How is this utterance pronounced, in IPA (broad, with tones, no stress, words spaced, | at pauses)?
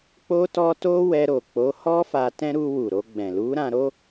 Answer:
k͡po˦tɔ˦ to˦wɛ˧ɾo˨ k͡po˨˦hɔ˦ fa˧tɛ̃˦ ɾu˧wu˨ ɾo˧ɡ͡bɛ̃˨ lu˨˦ɾã˧ ɾo˦